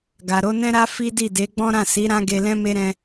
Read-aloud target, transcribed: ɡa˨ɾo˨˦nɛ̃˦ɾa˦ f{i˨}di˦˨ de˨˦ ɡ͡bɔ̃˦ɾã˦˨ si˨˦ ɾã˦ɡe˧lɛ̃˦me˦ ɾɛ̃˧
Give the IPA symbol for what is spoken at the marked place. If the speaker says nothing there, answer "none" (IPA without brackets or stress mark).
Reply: i˦